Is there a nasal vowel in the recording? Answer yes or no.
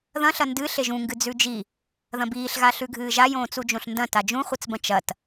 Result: yes